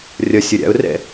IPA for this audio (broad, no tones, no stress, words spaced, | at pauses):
rʲʌsʲʌ ɾʲa̰ʊ̯rɛ̰